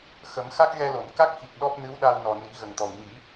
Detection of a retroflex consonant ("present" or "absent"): absent